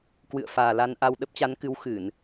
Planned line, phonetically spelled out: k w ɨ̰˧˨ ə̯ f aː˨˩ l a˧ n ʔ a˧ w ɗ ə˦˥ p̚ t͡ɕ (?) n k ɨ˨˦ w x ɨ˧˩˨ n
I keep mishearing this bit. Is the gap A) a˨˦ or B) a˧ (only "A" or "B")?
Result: A